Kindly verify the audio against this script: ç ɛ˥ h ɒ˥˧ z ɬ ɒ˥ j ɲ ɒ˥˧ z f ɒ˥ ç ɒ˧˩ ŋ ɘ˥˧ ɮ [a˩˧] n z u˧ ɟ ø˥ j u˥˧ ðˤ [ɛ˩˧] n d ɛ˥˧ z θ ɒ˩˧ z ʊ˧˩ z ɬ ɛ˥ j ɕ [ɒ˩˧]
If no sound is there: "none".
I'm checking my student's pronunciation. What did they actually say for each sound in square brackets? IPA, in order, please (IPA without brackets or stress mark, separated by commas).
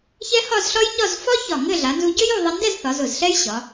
a˩˧, ɛ˧, ɒ˩˧